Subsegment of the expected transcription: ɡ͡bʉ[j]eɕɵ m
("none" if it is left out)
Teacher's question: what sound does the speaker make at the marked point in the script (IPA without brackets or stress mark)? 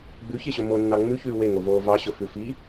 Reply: ç